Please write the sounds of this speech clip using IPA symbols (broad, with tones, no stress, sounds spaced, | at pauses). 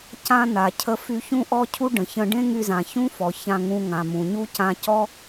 c ã˧ n a˩ cʰ ə˧ f y˧ ç ũ˥ ʔ ɔ˥ cʰ u˥ ɖ ə̃˩ ç ə̃˧ ɖ ẽ˥ ŋ y˧ z ã˩ ç ũ˥ f ɔ˩ ç ã˧ ŋ ũ˧ ŋ ã˩ m ũ˩ ɲ u˥ c ã˧ c ɔ˥